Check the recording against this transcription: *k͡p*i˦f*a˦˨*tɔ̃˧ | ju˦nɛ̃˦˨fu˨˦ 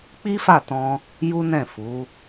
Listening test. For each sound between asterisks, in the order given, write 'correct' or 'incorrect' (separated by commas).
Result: correct, correct